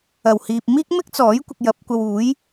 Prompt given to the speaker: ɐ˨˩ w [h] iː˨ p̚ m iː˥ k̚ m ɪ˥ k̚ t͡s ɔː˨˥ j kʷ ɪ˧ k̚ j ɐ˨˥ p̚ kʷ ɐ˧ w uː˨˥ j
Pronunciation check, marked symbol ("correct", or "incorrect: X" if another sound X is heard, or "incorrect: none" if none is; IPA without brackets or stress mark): correct